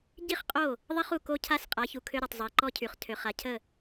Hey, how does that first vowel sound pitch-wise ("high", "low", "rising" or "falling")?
falling